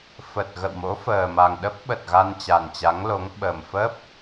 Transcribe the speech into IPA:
f ə˨˩ t̚ ɣ ə̰˧˨ w m o̰˧˥ f əː˨˩ m a˨˩ ŋ ɗ ə˦˥ p̚ ɓ ə˨˩ t̚ ɣ a˧ n t͡ɕ a˨˩ n t͡ɕ a˨˦ ŋ l o˨˦ ŋ ɓ ə˨˩ m f ə˦˥ p̚

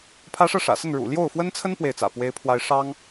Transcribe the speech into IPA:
pʰ ä˥ ʂ ɤ˥˩ ʂ ä̰˨˩ s ə˥˩ n ɻ ṵ˨˩ l j o˥˩ ʊ̯ f w ə˥ n t͡sʰ ə˥ n p w e˥˩ ɪ̯ t͡s ä̰˨˩ p w e˥ ɪ̯ pʰ w a˥ ɪ̯ ʂ ɑ˥ ŋ

